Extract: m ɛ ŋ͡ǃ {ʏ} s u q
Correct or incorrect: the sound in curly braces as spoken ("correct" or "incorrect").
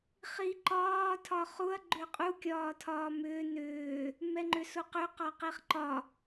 correct